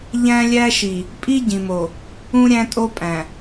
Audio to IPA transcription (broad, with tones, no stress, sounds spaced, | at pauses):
ʎ æ̃˦ lʲ æ˦ ʃ i˨ | pʼ i˦ ɟ ĩ˨ m o˨ | ũ˦ ɾʲ æ̃˦ tʼ o˦ pʼ æ̃˨